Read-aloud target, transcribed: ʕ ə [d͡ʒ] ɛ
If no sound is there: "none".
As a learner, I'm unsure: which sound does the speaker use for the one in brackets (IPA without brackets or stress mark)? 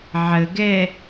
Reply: ɡ